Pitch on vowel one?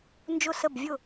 falling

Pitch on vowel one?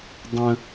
high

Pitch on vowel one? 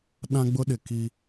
high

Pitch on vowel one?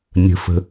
low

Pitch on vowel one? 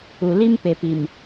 low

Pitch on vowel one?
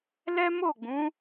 high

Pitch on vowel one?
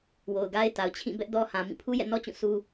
low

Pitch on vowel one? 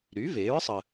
rising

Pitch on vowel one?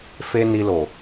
high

